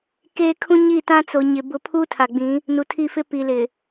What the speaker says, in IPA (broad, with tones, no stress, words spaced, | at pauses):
keː˦ kʰũ˦ɲi˦˨tã˦ t͡so˨ɲɪ˨ bʊ˦ pʰuː˦tʰa˨ɡ͡bĩ˨˦ | nu˨tʰi˦˨fɪ˦ pi˨lɪ˨